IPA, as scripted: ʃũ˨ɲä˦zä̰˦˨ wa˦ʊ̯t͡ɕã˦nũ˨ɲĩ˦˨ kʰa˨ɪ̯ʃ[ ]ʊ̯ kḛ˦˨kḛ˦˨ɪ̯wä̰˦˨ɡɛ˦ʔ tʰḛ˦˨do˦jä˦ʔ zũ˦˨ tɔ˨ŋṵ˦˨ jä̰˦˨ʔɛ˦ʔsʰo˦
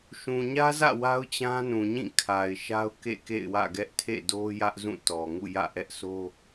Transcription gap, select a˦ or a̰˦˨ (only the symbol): a˦